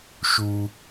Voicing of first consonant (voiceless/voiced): voiceless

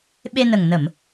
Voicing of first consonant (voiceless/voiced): voiced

